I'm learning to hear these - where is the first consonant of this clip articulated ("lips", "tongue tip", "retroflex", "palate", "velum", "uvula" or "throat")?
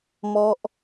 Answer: lips